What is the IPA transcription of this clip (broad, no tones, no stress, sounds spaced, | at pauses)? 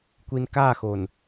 kʷ i n k a x o n